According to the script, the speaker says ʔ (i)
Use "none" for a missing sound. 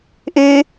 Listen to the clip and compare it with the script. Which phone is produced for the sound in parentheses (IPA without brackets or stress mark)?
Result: e